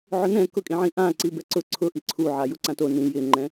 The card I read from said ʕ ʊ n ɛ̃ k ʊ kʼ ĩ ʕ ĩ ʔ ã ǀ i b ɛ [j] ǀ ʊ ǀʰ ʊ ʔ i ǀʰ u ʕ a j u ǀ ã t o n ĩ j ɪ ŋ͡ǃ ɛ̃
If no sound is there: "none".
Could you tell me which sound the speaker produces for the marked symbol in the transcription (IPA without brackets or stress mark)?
none